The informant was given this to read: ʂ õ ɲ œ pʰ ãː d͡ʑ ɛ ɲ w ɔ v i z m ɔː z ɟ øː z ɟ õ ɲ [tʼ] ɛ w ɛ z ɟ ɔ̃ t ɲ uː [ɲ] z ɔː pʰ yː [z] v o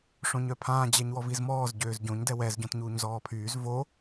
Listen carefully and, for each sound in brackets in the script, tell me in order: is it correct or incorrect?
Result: incorrect, correct, correct

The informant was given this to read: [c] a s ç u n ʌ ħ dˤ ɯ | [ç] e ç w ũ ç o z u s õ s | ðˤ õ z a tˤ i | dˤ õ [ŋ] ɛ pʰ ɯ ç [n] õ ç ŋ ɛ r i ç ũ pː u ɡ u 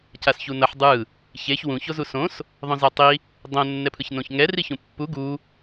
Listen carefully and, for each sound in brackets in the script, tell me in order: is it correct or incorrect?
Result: correct, correct, incorrect, correct

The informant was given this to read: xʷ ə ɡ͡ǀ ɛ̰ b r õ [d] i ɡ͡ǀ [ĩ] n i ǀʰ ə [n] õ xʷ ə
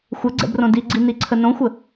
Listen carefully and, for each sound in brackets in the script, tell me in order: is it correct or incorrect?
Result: correct, incorrect, correct

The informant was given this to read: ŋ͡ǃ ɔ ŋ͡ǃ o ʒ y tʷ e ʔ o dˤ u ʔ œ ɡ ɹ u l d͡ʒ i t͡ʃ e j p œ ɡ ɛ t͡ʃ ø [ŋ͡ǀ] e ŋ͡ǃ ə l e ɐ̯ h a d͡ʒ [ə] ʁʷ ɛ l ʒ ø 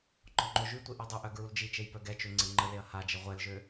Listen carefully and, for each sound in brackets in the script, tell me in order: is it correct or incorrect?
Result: correct, correct

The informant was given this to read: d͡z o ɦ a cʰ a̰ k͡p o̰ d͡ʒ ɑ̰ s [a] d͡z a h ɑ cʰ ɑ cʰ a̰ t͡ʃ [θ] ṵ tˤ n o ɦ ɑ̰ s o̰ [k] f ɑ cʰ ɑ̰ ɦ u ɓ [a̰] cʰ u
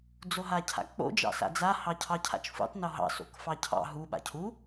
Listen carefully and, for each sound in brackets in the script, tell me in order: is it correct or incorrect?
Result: incorrect, incorrect, correct, correct

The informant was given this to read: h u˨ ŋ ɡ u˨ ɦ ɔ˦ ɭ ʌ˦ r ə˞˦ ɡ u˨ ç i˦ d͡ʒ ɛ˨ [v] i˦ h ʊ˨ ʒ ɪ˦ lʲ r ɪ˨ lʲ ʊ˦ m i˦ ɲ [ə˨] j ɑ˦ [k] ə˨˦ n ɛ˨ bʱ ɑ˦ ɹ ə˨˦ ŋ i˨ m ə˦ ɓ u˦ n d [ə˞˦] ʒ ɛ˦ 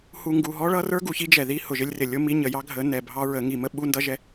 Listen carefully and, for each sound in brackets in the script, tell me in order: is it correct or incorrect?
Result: incorrect, correct, incorrect, incorrect

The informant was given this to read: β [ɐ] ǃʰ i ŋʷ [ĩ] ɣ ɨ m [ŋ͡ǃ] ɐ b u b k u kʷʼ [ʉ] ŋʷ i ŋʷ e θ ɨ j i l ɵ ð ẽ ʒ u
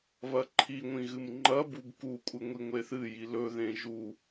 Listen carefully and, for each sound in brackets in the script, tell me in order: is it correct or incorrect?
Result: correct, correct, correct, incorrect

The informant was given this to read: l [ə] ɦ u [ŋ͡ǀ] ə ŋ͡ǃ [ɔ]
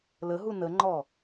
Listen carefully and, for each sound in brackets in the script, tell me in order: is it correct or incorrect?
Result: correct, incorrect, correct

